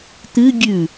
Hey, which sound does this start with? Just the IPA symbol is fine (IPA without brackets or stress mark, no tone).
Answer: t̪